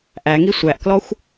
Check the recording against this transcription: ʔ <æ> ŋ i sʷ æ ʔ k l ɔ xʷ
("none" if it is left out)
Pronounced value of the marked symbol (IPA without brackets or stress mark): æ